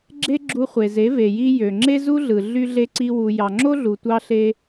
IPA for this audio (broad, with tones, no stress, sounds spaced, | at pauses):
ɡ͡ǁ e˦ ɡ͡ǁ u˧ χʷ e˨ z e˨˦ v e˨ j i˧ j ø˨ ŋ͡ǁ e˦ z u˦ ɮ ɯ˨ ɮ y˦ ɮ e˦ ǀ i˦ w u˧ j ɑ˨ ŋ͡ǁ o˦ ɮ u˨ tʷ ɑ˦ ɬ e˦